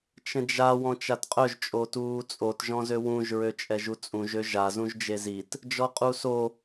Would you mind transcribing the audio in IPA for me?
t͡ʃ ə̃ d͡ʒ a w ɔ̃ t͡ʃ a t qʼ œ ʒ t͡ʃʼ o t uː t͡sʼ o t ʒ ɔ̃ z ø w ũ ʒ ɹ ø t͡ʃʼ ɛ ʒ u t͡sʼ ũ ʒ ø ʒ a z ũ ʒ d͡ʒ e z i t | d͡ʒ ɔ qʼ u s o

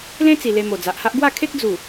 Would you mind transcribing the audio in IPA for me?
l ẽ˦ t͡s i˨˩ l e˧ m o˨˩ d͡z a˨ ʔ h a˦ ʔ ɡ w a˥˧ kʰ e˦ k̚ d͡z u˨˩

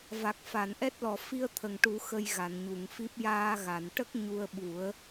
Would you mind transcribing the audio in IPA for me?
v a˨˩ k̚ f a˨˩˨ n ʔ ɛ˦˥ t̚ l ɔ˨˩ f i˧ ə̯ t̪ʰ ə˨˩ ŋ ʈ u˨˩˦ x ə˧ j ɣ a˨˩˨ n ɲ u˨˩˨ ŋ f i˦˥ p̚ j aː˧ ɣ a˨˩˨ n ʈ ə˦˥ k̚ ɲ u˧ ə̯ ɓ u˨˩˦ ə̯

